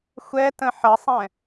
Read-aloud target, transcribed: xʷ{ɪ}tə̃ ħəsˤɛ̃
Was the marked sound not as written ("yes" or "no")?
yes